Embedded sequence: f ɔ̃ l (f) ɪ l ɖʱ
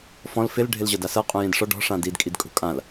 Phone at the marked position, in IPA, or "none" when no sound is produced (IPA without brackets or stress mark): f